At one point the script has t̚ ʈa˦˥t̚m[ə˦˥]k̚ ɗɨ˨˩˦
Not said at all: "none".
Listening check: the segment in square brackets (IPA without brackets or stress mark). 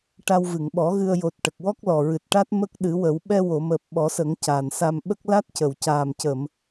ə˦˥